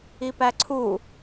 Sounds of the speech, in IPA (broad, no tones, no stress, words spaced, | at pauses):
ipæǀʰu